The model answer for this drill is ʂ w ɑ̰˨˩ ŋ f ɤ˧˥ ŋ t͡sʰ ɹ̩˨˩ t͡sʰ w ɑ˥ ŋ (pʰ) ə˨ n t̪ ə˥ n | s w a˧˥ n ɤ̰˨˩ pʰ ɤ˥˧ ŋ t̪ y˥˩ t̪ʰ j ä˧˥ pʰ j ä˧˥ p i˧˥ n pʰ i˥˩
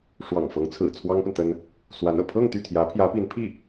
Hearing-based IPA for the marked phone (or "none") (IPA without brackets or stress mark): p